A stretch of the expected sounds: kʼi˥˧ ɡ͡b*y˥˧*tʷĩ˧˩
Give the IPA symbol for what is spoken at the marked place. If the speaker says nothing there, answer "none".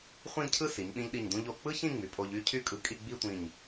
i˥˧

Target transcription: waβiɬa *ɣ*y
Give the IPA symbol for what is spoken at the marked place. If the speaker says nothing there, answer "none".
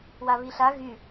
ɣ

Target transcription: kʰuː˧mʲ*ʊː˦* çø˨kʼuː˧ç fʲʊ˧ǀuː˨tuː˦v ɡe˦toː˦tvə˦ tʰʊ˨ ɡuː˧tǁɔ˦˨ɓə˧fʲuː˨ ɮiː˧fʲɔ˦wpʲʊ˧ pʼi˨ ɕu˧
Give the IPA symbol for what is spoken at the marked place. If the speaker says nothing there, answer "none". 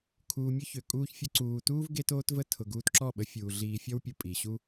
ʊ˦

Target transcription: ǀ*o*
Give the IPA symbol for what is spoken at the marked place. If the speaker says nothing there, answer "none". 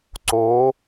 o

